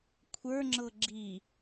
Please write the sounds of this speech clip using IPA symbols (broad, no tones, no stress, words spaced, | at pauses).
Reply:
kʷʰə˞ ŋ͡ǁɤɡ͡ǁi